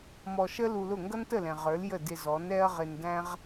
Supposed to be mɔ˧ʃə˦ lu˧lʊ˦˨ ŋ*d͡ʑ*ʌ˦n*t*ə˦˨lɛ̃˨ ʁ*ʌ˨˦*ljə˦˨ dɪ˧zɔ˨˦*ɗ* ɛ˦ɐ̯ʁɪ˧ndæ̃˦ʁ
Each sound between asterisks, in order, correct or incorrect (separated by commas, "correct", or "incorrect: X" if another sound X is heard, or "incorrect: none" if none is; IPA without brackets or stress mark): incorrect: ɡ, correct, incorrect: ə˞˨˦, incorrect: n